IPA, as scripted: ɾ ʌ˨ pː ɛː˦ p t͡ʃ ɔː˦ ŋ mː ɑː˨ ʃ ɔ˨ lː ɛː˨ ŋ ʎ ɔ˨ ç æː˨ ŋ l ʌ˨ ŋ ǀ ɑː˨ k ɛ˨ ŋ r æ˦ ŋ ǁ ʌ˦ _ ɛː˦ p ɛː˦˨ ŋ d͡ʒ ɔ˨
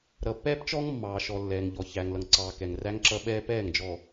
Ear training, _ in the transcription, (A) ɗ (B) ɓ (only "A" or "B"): B